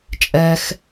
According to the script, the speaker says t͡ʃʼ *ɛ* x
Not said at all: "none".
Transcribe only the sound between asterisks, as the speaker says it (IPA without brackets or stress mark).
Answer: ɛ